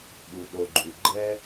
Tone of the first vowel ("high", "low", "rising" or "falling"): low